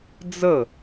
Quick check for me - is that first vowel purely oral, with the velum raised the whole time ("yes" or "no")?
yes